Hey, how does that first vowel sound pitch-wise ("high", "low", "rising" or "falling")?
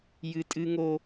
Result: high